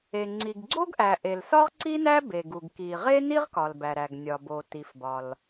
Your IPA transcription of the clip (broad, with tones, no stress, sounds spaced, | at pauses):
e˩ ŋ͡ǀ i˩ ɡ ɡ͡ǀ o˥ ɡ ʔ æ˩ ʔ e˩ l s ɒ˥ ʁ ǀ i˥ n æ˥ b e˩ ɡ u˩ ɡ k i˩ ʁ e˥ n i˥ ʁ k ɒ˩ l b æ˩ ɾ æ˩ ɡ nʲ ɒ˩ b o˩ t i˩ f b ɒ˩ l